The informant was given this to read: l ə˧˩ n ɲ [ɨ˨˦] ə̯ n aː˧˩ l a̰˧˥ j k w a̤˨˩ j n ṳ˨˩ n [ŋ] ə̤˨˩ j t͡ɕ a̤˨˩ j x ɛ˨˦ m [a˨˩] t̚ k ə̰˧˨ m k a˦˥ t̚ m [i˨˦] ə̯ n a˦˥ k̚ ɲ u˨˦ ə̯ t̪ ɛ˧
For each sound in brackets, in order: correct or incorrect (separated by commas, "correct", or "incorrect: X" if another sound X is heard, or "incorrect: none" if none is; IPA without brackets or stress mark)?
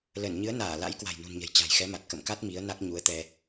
correct, incorrect: ɲ, correct, correct